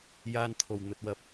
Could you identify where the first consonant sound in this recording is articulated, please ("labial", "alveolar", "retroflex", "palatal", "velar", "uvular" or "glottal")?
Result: palatal